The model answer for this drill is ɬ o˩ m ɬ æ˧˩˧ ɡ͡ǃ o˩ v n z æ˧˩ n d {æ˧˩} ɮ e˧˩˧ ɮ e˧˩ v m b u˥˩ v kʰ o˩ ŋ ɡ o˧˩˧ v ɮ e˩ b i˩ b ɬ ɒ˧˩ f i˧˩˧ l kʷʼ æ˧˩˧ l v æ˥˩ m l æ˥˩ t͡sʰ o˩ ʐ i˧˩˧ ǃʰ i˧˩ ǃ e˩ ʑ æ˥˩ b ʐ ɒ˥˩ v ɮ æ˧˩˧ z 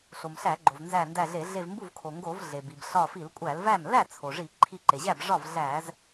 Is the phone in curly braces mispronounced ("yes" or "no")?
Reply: no